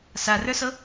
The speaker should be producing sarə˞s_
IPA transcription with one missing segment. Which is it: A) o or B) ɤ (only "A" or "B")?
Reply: B